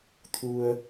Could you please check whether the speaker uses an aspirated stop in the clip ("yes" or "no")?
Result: yes